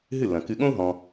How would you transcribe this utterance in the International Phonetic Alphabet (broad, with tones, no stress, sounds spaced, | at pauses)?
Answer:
ɦ ɨ˥˩ lː ɐ̃˩ k ɨ˧ ɠ õ˥ u̯ ɦ ɔ̃˧